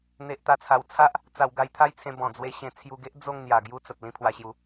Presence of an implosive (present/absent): absent